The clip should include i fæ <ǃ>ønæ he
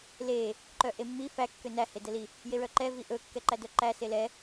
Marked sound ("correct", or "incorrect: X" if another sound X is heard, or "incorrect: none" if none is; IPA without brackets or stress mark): incorrect: kː